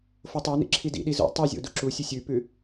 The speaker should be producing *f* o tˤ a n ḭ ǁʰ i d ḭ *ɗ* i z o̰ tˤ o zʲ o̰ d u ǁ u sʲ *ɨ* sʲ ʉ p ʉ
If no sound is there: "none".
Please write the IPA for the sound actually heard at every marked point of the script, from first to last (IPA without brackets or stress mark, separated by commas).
f, ɗ, ɨ